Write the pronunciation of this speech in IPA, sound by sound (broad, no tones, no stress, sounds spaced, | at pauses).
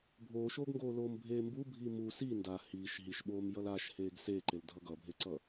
bʱ oː ʃ oː ɡ ŋ ɡ oː l oː m bʱ eː m b u bʱ i m u s i n d a h iː ʃ ɦ i ʃ ɓ oː m j ʌ l a ʃ h eː ɡ s eː ǃ e l dʱ ʌ ɡ ʌ bʱ e ǀ ʌ